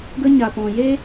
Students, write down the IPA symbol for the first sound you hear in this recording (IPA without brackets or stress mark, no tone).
ɡ